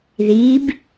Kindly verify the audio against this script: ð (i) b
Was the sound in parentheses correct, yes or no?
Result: yes